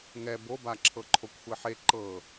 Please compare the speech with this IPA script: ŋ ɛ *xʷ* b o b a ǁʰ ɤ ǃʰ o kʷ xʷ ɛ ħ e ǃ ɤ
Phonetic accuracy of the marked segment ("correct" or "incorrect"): incorrect